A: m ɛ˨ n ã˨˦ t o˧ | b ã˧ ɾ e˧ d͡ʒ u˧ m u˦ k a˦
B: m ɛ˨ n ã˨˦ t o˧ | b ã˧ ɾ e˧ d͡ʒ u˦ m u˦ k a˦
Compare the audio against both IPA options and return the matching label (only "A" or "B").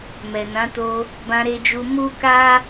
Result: A